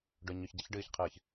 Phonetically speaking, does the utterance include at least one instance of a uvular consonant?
yes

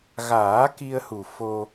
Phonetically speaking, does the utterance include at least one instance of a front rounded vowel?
no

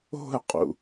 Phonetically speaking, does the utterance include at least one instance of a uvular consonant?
yes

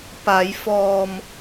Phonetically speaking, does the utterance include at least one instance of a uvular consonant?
no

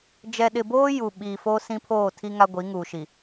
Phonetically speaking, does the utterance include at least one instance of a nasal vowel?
yes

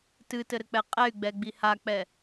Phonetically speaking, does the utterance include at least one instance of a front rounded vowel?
yes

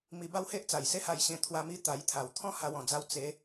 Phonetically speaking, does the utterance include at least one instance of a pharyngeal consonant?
no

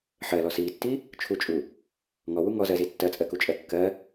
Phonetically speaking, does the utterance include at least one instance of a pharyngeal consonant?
yes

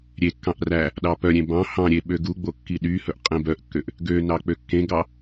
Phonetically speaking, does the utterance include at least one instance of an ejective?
yes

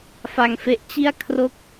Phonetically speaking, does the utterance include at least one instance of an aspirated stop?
yes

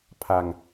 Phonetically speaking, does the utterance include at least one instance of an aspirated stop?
yes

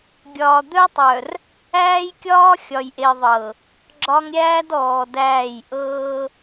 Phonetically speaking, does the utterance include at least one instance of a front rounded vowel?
yes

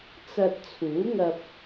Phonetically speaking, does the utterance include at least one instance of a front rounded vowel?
no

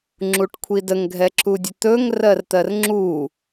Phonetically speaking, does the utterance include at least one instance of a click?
yes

